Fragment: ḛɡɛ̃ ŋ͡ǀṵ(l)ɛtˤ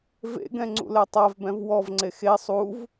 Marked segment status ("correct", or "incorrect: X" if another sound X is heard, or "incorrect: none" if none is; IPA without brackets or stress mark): correct